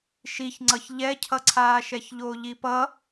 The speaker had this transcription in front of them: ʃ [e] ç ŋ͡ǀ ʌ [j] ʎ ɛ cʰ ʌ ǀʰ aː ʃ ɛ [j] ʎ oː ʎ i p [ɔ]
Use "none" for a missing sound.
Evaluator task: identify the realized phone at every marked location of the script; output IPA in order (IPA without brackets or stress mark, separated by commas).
i, ç, ç, ʌ